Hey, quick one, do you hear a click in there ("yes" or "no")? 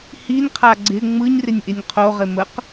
yes